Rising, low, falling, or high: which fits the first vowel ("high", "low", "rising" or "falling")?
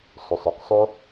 low